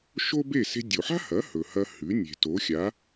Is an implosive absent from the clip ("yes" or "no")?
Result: yes